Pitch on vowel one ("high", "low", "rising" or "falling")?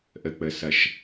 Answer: low